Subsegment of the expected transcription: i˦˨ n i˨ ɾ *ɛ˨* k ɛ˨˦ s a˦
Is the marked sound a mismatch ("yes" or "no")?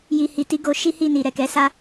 no